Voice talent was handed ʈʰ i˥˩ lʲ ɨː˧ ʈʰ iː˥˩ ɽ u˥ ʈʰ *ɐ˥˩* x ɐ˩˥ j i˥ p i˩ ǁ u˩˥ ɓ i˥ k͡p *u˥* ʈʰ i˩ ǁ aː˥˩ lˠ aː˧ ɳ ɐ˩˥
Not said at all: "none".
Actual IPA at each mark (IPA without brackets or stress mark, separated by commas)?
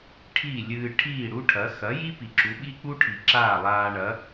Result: ɐ˩˥, u˥